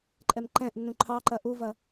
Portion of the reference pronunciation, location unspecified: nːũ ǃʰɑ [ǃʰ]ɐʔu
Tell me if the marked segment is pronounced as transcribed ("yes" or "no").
no